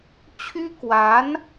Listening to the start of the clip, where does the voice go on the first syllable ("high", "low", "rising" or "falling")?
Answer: high